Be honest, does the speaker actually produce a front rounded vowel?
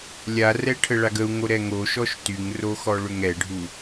yes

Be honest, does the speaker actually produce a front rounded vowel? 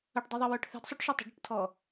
yes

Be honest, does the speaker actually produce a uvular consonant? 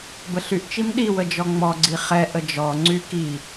yes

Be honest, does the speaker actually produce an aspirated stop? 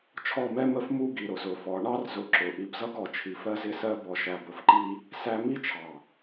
yes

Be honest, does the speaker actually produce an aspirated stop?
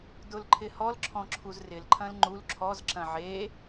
yes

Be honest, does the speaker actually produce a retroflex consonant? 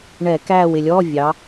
yes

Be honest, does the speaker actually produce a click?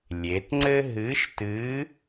yes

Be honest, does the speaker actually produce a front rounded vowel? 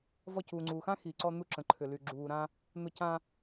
yes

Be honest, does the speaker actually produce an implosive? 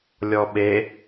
yes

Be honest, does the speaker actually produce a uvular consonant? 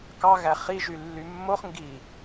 yes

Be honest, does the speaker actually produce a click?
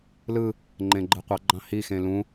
yes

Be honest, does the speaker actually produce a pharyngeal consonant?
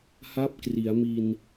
no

